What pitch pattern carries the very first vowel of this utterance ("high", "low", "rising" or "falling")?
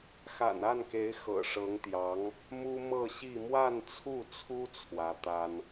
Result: low